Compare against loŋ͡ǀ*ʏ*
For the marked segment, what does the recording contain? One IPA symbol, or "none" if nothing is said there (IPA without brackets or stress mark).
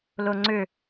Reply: ʏ